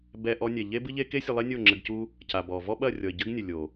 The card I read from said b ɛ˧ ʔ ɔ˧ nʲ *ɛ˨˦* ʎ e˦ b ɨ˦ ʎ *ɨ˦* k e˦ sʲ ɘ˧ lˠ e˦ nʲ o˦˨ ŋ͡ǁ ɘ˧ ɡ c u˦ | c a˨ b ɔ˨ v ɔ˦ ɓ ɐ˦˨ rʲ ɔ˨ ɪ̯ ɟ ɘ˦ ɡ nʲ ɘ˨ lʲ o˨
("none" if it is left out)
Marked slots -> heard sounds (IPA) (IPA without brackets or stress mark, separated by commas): ɛ˨, e˦